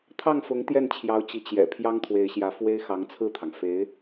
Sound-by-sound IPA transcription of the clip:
t̪ʰɑ˥˩ŋfʊ˧˥ŋ t̪jɛ˥˩nt͡ɕʰjɑ˧˥ʊ̯t͡ɕi˧˥ t͡ɕjɛ̰˨˩ pʰjɑ˥ŋt̪ʰwe˧˥ɪ̯ɕjä˧˥fwe˥ɪ̯ xɑ˧˥ŋt͡sʰɹ̩˥˩t̪ʰɑ˩ŋ fe˧˥ɪ̯

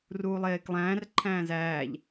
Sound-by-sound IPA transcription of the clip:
ruːlˠeːklˠæ̃ːr ǃʰæ̃ːzæːʎ

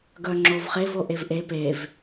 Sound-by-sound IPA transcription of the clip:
ɡœŋ͡ǁovχev oʔevʔe pev

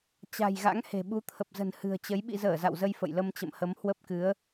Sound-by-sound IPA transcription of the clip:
t͡ɕa̤˨˩jɣa̰˧˥ŋ he̤˨˩ɓu˨˦ t̪ʰə˨˩p̚zə̤˨˩n hɨ̤˨˩ə̯t͡ɕə˨˦j ɓḭ˧˨zəː˧˩ za̰˧˨wzə˧j fə̰˧˨jlə˧mt͡ɕə̰˧˨mhə˨˦m hwə˦˥p̚kɨ˨˦ə̯

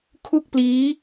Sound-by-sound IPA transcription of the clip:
kʰu˥˩k̚pliː˦˥

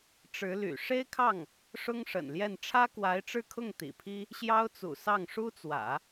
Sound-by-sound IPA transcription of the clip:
ʈ͡ʂɻ̩˧˥ly̰˨˩ ʂe˥ɪ̯kʰɑ˥˩ŋ | ʂʊ˥ŋʂə̰˨˩nljɛ˥˩n ʈ͡ʂʰä˥kwa˧˥ɪ̯ʈ͡ʂɻ̩˥˧kʰʊ˥˩ŋ t̪ḭ˨˩pʰi˥ | ɕjɑ˥ʊ̯t͡sṵ˨˩ sɑ˥˩ŋʂu˥t͡swä̰˨˩˦

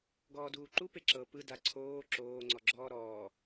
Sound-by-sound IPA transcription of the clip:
ɡɔːduːǃu peǁɤ pɯ daǀʰoː ǁoː ŋ͡ǀɔɡ͡ǁɔːɾɔː

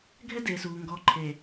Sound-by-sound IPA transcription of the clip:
ɡʱɛ˦deː˨suː˨ ŋɡɔː˨ǃʰeː˨

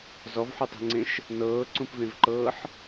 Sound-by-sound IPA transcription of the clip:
zɔvħutˤe̤ŋ͡ǀẽʃ | nɤːǀũpvẽvǃɤːħ

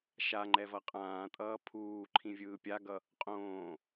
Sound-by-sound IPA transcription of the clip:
ʃaŋ͡ǃɛ vʌqʼãːtʼʌː pʰuːǃʰĩ vʲɯːpʲaɡʌ | qʼõː

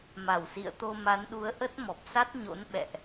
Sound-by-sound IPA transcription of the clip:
ma˧˩wsḭ˧˨ə̯t̪o˧ ma˨˦nɗu˨˦ə̯ ʔə˦˥t̚mɔ˨˩p̚sa˦˥t̚ɲo̰˧˥n ɓɛ̰˧˨ʔ

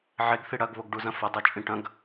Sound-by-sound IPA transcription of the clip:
ʕeɡ θiɽɐɡβoɡ ɖuzɐ̃fɐdˤɐ t͡ʃʼĩʈɐ̃ɡ

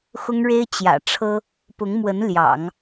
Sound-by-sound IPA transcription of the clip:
xʊ˥ŋɻe˥ɪ̯ t͡ɕjä̰˨˩ʈ͡ʂʰɤ˥ | pʊ˧˥ŋmwə˧˥n ljɑ̰˨˩˦ŋ

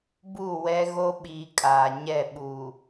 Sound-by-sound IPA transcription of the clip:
bu˦˨ wɛ˦ɣo˦ɓiː˨ kʼaː˨ ɲɛ˦˨ ɓuː˨

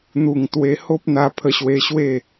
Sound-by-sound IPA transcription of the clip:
n̪u˨˩ŋt̪we˧ho˦p̚n̪a˧ pʰə˧ɕwe˧ɕwe˥˧

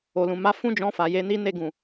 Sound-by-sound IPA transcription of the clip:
o˨lũ˨ma˧ fũ˦d͡ʒɔ̃˧ fa˨ je˨˦ni˦ne˦˨ ɡũ˨

